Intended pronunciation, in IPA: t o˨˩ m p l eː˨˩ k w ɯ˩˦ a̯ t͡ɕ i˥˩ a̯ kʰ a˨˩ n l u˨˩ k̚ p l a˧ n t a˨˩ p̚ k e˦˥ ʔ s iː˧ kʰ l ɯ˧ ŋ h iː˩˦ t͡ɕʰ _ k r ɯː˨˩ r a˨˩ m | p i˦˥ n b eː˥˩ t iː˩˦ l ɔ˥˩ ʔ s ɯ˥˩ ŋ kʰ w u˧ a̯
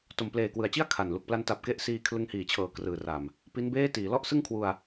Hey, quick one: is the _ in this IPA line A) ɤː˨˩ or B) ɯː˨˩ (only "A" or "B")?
A